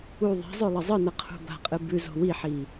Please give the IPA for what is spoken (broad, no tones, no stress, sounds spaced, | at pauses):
u ðˤ e̤ zˤ ɵ lˠ ɐ zˤ ɨ n ɐ qʰ ṳ b a̤ qʼ ɨ b ʉ z o̤ w i ħ i